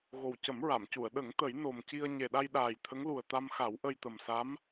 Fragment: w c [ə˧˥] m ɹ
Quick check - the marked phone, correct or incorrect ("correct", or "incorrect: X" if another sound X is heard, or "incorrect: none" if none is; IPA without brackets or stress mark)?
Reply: incorrect: ə˨˩˦